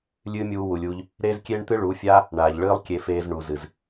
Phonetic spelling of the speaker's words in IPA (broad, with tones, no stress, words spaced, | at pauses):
lʲɨː˦mʲuː˧ wu˨lʲuː˧ʎ | ɾeː˦z kʲeː˦ɳt̪ɨ˦ɭuː˨˦fʲaː˦ | ɳaː˨ʎɭɨː˦lˠ kʲe˧feː˧zɳu˨ zɨ˨z